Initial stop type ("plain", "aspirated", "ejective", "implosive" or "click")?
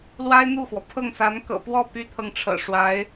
aspirated